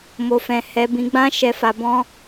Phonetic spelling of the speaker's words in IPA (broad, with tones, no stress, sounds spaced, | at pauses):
m o˧ f ɛ̃˧ h ɛ˧ b ĩ˧ ɡ͡b ã˦ ʃ ɛ˧ f a˧ b ɔ̃˦